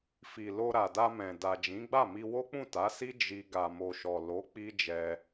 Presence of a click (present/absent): absent